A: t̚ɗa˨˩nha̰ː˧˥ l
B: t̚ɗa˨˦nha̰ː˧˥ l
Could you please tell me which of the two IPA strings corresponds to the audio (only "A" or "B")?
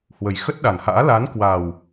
A